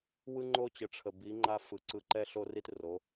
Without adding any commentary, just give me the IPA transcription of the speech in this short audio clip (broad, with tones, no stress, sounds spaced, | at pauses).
w ɯ˦ ŋ͡ǃ o˦ t͡ɕ ə˨ ʈ͡ʂʰ ə˨ b i˨˦ ŋ͡ǃ a˦ f ɯ˨ ǀ ɯ˧ ǃ ɛ˦ ɬ o˦ r i˦ t r o˨˦